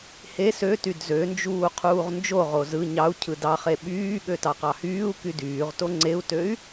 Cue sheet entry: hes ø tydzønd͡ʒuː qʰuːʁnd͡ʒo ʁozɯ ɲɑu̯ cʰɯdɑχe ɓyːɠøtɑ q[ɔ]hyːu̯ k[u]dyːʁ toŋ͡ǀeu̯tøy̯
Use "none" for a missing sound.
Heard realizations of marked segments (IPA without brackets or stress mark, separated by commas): ɑ, y